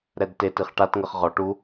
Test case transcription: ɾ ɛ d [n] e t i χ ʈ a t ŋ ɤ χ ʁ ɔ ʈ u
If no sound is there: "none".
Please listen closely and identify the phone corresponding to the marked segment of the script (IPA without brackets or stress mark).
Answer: t